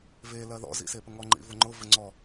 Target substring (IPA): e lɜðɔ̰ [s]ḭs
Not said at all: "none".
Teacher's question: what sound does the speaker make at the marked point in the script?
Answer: z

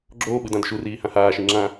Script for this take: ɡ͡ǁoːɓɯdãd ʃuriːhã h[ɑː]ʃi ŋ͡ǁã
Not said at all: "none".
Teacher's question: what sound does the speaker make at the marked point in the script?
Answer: aː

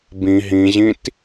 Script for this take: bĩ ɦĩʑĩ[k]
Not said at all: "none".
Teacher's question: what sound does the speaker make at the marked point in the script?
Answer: t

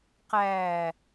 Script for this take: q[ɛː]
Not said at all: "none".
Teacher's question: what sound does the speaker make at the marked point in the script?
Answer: æː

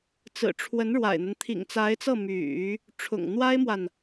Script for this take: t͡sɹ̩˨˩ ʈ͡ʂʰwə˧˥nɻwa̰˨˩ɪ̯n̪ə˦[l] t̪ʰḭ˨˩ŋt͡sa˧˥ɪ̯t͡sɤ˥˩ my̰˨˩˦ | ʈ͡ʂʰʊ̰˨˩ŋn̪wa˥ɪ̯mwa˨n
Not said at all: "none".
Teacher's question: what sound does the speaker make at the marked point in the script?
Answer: n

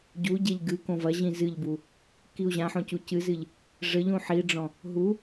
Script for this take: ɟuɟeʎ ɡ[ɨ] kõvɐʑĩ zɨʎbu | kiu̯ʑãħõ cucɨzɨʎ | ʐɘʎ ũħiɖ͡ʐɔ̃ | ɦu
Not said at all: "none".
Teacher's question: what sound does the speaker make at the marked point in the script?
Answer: ɨ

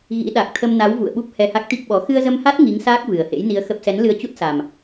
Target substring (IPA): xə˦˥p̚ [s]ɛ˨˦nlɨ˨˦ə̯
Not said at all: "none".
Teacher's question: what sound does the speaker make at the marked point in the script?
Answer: s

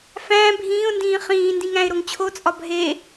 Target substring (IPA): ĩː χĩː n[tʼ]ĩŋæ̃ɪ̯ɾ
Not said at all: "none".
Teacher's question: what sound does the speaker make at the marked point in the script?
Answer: d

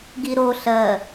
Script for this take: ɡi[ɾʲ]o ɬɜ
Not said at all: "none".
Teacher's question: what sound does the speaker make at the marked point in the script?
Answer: ɾ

